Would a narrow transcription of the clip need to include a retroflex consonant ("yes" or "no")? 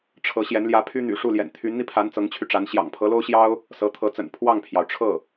yes